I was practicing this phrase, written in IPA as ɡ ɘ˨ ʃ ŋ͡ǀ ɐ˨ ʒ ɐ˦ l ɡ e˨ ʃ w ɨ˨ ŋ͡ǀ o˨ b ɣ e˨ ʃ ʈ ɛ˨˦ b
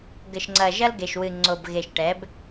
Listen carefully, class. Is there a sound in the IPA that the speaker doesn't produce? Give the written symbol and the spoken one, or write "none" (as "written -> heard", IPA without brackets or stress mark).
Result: none